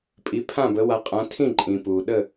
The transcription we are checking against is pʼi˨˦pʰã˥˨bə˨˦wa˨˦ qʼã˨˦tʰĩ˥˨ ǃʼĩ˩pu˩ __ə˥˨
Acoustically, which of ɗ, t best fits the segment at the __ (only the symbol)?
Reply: ɗ